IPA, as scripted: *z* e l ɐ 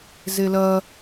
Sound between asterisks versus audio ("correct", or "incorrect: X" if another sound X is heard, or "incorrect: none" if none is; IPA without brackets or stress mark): correct